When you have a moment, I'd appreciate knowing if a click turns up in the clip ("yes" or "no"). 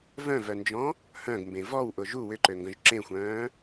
yes